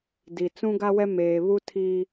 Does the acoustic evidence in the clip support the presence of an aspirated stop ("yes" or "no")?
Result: yes